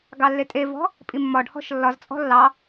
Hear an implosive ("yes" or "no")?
no